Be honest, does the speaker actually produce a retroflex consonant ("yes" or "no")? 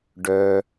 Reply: yes